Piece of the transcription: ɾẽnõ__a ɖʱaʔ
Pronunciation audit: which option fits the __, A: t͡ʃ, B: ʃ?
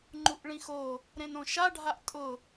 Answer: B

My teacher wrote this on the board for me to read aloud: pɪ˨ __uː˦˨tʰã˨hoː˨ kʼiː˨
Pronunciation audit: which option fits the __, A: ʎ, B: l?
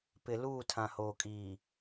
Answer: B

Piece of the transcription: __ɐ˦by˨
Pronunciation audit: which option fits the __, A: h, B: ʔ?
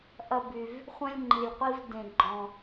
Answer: B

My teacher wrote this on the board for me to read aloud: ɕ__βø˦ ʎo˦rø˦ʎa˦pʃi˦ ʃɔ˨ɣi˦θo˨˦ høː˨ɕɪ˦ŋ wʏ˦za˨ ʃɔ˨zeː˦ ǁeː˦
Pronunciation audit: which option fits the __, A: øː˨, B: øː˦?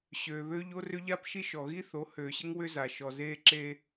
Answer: A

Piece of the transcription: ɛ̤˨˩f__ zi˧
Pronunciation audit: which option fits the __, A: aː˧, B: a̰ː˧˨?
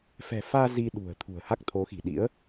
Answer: A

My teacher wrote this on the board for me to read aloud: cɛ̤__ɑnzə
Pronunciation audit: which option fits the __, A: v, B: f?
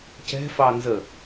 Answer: B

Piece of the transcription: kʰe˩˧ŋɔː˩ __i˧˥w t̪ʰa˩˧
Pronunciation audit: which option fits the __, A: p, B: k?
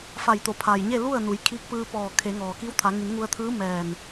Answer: B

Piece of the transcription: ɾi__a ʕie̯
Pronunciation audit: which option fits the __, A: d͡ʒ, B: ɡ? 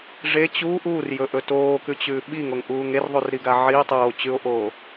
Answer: B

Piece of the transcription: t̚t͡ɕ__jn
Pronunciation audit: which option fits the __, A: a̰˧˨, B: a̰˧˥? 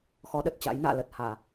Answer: B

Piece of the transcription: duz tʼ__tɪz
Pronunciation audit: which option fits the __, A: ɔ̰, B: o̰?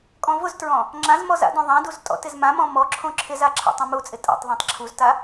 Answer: A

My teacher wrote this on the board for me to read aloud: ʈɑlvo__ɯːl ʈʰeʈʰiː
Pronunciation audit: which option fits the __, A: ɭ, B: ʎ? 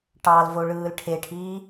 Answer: A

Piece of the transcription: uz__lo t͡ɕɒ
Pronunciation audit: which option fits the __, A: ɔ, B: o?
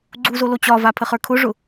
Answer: B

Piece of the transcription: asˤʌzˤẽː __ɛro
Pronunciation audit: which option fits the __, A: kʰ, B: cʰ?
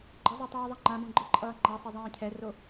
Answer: B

